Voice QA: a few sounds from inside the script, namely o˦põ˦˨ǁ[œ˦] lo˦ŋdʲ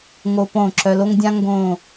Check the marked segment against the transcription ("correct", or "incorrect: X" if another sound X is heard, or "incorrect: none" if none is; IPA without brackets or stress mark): correct